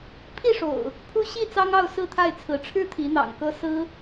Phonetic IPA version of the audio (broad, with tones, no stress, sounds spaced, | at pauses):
pʰ i˥˨ ʂ o̰˨˩ ʊ̯ | pʰ u˦ ɕ i˥˨ t͡s ɑ˦ ŋ ɑ˥˨ ʊ̯ s ɹ̩˥˨ t̪ʰ a˥˨ ɪ̯ t͡sʰ ɹ̩˨˦ ʈ͡ʂʰ ɻ̩˦ t̪ʰ i˨˦ n̪ ɑ̰˨˩ ŋ k ɤ˦ s ɹ̩˦